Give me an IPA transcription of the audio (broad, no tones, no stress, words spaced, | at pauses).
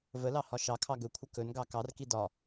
vəlɑ hɒʃɑkʰɑ ɡɵkʷʰə kɵnɡɑ kɑrki dɒ